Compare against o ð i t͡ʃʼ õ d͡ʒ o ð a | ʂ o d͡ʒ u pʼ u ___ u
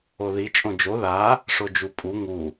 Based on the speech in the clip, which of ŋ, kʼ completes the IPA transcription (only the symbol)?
ŋ